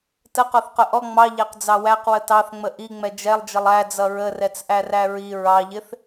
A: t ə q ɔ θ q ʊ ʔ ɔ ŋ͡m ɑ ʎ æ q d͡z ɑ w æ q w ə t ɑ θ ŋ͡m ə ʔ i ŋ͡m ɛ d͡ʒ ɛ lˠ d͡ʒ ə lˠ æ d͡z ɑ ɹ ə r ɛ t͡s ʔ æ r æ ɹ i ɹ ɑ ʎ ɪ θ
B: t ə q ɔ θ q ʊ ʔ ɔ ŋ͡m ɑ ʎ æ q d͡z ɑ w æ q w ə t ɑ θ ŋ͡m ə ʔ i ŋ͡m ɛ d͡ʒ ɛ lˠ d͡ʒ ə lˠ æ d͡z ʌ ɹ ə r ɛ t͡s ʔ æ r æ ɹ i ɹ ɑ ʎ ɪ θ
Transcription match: B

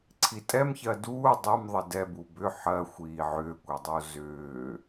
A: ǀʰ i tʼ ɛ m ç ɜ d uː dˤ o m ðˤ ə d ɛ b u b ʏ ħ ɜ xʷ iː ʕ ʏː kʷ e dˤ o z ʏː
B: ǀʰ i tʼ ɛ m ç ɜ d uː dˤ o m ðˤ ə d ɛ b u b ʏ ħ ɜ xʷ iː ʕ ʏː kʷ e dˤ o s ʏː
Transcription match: A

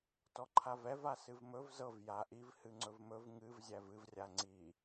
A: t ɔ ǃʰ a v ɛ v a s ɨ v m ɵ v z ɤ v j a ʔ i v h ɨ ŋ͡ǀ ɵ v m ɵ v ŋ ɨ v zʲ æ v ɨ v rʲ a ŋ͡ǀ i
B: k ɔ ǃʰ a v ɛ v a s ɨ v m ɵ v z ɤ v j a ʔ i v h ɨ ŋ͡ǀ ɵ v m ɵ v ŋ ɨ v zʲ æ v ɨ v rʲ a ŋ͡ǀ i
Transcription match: A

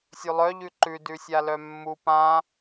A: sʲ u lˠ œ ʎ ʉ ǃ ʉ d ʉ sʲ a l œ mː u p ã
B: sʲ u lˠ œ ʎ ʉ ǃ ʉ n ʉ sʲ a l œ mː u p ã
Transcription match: A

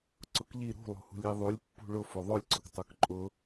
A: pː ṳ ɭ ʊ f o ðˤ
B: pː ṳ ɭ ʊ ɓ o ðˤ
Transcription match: A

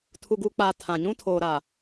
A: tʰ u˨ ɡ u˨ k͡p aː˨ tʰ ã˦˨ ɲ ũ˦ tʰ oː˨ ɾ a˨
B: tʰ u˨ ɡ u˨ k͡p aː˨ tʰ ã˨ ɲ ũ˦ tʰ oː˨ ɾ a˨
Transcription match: B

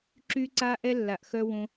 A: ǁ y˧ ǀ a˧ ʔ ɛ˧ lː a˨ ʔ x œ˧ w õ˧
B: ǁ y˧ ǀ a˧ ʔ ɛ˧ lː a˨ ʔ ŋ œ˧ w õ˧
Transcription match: A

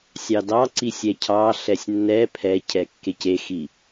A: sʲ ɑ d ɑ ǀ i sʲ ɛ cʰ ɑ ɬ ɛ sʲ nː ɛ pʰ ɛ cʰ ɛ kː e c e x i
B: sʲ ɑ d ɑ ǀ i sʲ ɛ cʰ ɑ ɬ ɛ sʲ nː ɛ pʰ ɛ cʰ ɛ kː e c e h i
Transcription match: A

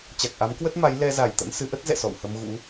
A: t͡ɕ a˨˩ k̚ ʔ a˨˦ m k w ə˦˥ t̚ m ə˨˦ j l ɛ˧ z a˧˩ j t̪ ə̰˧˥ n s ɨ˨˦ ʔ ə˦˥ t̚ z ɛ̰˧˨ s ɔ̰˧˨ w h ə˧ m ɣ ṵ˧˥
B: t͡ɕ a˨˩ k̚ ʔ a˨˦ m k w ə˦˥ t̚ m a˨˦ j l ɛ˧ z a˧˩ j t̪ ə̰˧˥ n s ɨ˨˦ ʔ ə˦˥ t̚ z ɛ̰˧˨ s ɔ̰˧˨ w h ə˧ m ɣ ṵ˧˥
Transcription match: B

